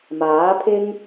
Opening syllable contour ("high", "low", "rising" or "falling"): rising